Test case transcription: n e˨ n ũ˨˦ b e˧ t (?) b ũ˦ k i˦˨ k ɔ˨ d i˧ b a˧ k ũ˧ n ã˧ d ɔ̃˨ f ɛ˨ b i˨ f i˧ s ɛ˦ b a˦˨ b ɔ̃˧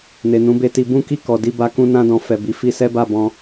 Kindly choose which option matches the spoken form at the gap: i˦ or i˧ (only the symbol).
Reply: i˧